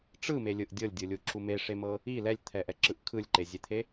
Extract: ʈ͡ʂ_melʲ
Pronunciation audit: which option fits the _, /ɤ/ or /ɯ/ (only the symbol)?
ɯ